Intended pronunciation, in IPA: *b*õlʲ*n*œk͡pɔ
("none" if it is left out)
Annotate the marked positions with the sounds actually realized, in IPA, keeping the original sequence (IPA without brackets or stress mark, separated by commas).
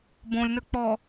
b, n